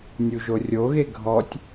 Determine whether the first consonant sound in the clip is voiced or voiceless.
voiced